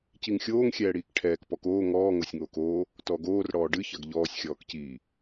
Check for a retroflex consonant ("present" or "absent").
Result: present